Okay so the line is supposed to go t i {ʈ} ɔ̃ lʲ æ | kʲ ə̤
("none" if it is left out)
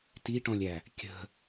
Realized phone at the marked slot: ʈ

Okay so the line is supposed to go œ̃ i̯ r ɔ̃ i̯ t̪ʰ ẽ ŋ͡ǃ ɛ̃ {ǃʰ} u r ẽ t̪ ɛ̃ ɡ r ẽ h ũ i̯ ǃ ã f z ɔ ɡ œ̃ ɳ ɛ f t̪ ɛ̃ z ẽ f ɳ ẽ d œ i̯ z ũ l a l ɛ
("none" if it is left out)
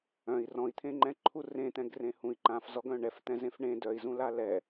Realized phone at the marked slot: ǃʰ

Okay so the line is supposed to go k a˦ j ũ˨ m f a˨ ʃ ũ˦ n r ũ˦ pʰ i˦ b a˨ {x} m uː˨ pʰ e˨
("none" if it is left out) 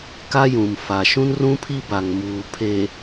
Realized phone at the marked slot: ŋ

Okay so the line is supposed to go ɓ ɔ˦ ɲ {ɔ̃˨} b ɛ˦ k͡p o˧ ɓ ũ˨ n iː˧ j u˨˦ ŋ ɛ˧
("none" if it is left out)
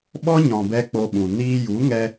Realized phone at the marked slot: ɔ̃˨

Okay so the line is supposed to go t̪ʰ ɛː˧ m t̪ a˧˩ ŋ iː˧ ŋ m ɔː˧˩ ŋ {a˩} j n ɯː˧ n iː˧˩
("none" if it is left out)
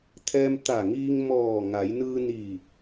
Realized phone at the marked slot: a˩˧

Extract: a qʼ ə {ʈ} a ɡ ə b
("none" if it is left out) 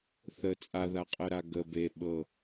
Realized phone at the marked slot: ɾ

